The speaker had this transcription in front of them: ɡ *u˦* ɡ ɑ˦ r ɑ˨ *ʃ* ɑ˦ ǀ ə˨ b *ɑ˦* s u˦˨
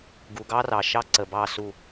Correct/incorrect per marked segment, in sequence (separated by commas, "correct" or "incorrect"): incorrect, correct, incorrect